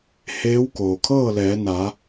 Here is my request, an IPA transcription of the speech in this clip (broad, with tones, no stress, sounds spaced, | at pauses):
h eː˧˥ w k oː˩ kʰ ɤː˥˨ l ɛː˩˧ n a˩˧